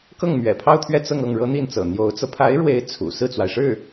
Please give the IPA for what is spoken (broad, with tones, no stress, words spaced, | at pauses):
kɤ˥˩ŋmɥɛ̰˨˩pʰɑ˥˧ʊ̯t̪ʰɥɛ˥˧ t͡sɤ˥˧ŋɤ˥˩ŋ ɻɤ˥n̪i˥˩nt͡sɤ̰˨˩ n̪jo˧˥ʊ̯t͡sɤ˧ pʰa˧˥ɪ̯ɻwe˧˥ɪ̯ t͡sʰṵ˨˩ sɹ̩˥˩t͡swa˩ɪ̯ʂɻ̩˥˩